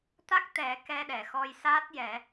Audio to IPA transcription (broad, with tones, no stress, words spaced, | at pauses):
t̪a˦˥k̚t̪ɛ˨˩˦ kɛ˧ɗɛ˨˩˨xɔ˧j saː˦˥t̚jɛ˨˩˦